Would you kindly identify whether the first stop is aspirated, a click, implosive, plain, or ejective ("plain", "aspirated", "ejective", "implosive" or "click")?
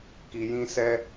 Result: plain